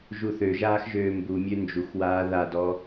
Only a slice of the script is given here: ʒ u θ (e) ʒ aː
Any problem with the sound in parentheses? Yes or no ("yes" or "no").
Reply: yes